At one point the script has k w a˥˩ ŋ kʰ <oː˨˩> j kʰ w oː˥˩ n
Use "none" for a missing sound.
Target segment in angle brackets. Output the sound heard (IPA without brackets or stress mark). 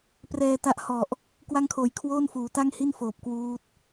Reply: oː˨˩